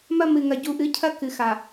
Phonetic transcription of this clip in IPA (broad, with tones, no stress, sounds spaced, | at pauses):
m ɐ˦ m ɨ˨ ŋ ɐ˨ ɟ u˨ ʔ ɨ˨˦ cʰ ɐ˦ k ɨ˨ x a˨